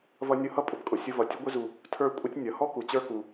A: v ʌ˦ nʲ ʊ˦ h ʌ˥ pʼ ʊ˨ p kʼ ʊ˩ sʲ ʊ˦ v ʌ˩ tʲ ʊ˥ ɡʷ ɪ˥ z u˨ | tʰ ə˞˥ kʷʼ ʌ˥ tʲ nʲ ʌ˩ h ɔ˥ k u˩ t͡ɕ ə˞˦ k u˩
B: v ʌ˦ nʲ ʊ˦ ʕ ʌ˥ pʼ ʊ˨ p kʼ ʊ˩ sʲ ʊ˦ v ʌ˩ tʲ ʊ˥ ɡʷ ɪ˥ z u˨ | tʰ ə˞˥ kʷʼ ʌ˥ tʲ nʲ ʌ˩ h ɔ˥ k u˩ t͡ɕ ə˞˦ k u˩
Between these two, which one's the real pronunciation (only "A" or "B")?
A